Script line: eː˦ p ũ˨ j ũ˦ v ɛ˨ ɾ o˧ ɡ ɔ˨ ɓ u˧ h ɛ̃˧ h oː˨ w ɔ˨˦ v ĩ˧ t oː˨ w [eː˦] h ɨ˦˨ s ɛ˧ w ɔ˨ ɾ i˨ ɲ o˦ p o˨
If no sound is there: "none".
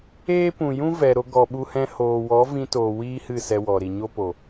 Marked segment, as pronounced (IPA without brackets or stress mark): iː˦